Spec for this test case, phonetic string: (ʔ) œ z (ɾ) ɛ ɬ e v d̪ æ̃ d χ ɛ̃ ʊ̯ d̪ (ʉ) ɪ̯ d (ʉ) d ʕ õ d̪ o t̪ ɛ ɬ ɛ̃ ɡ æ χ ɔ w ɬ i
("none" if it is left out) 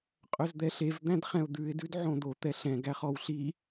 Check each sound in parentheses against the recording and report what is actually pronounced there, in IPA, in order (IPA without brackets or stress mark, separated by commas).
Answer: qʼ, d̪, ʉ, ʉ